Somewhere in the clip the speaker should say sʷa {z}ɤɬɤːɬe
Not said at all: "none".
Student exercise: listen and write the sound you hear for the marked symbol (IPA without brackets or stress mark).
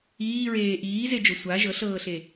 ʒ